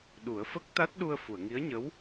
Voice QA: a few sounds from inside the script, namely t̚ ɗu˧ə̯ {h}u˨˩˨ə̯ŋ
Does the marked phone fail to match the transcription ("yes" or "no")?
yes